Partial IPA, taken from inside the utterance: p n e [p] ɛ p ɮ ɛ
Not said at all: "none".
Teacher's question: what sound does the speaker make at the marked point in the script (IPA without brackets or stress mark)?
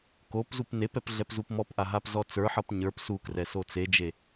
p